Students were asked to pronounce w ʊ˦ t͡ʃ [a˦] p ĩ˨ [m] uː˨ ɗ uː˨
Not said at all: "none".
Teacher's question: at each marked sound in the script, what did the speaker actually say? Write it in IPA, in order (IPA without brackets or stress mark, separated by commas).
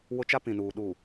a˦, n